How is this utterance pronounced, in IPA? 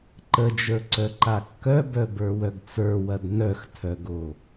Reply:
ǃ ə d͡ʒ ə˞ ǀ œ ǃ a kː œ b œ b ə˞ w œ ɡ t͡s ə˞ w ɐ d n œ x tʰ œ ɡ o

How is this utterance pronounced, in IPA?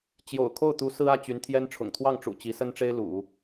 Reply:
t͡ɕ j o̰˨˩ ʊ̯ kʰ o˥˩ ʊ̯ t̪ u˧˥ s ɹ̩˥ ä˥˩ t͡ɕ y˧˥ n t̪ʰ j ɛ˥ n ʈ͡ʂʰ ʊ̰˨˩ ŋ t̪ʰ w ɑ˥˩ ŋ ʈ͡ʂ ṵ˨˩ t͡ɕ i˧˥ s ə˥ n ʈ͡ʂ e˥ ɪ̯ l ṵ˨˩˦

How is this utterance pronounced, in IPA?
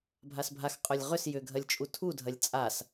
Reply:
bʱ a s bʱ a x qʼ œ lʲ ʁ ʏ s j ʏ ɡʱ ɐ lʲ t͡ʃʼ u tʰ u dʱ ɐ lʲ t͡sʼ a s

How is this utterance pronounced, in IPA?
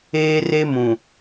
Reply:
eː˦ r e˦ m ũ˨

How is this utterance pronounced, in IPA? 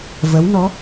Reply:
v ə˧˥ w n ɔ˧˥

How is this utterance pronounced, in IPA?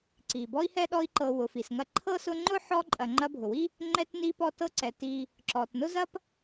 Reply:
ǀ i˩ b ɔ˦ i̯ h ɛ˥ ɗ ɔ˦ i̯ ǃ ɤ˨ w ʊ˩ f i˩ s ŋ ɐ˦ ǃʰ ɤ˥ s ʊ˦ ŋ͡ǃ ʊ˥ ħ ɔ˦ ǃʼ ɐ˨ ŋ͡ǃ ɐ˦ bʱ ʊ˩ w i˥ | ŋ͡ǃ ɛ˦ t n i˦ p ɔ˦ t ɤ˦ ǀ ɛ˩ t i˨ | ǁ ɔ˩ t n ʊ˥ z ɐ˥ p

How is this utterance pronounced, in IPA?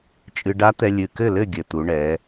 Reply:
t͡ʃʼ ɨ˧ ɖ a˦˥ t̪ ɛ˧ lʲ ɨ˨˩ k ɘ˥˩ l ɘ˥˩ ɡʲ ɘ˨˩ t̪ u˩˧ ɳ ɛ˩˧

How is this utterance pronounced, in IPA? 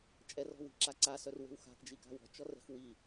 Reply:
t͡ʃʼ ɛ r ɔ̤ w i̤ ǁ a ǀ a s œ r w e̤ w x a̤ k d͡ʒ i k a̤ w ɔ̤ t͡ʃ ɔ r ɛ̤ x w i

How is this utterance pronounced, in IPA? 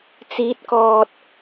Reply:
t͡s iː˨˥ t̚ k ɔː˨ t̚

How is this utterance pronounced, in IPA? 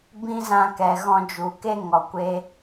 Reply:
b ĩ˦ z ã˧ k ɛ˨ ɣ ɔ̃˧ d͡ʒ u˨ k e˦ ŋ ɔ˨ kʷ e˧

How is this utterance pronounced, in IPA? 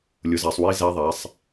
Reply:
lʲ ʊ˨˦ z æ˨ sˤ w i˦˥ z æ˦˥ ðˤ æ˨˦ sˤ

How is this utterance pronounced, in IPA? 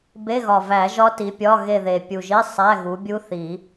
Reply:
b e˧˥˧ ɣ ɒ˨˩ v æ˨˩˦ ʒ ɒ˦˥ t i˨˦ pʲ ɒ˧˥˧ ɣ e˦˨ ð e˨˩ pʲ u˨˩ ʒ i˧˥˧ sˤ æ˧˥˧ ɣ u˨˦ bʲ u˦˥ θ i˨˩˦

